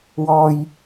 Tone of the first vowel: low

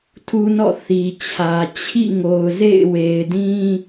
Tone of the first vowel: high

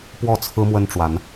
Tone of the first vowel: falling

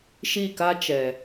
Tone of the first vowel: falling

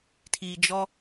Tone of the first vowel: low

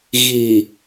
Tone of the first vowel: low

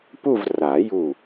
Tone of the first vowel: falling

